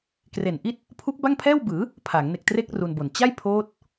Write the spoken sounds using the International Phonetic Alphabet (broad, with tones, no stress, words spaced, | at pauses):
kre˨˩nʔi˥˩t̚ | pʰu˦˥k̚ba˥˩ŋpʰɛː˥˩wbɯː˩˦ | pʰa˩˦ŋ ne˨˩k̚tre˦˥k̚ ru˧nbo˨˩n t͡ɕa˥˩j pʰoː˦˥t̚